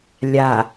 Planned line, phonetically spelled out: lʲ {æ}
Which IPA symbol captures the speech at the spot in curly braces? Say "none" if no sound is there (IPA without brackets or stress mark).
a